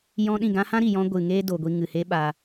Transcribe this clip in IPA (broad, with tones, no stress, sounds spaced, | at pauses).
j ɔ̃˧ ɗ ĩ˦˨ ɡ ã˦ h ã˦ ɾ i˨ j ɔ̃˧ ɡʷ ɨ˨ ŋ eː˦ d o˨ ɡʷ i˧ ŋ ɨ˨ h e˦ ɓ aː˧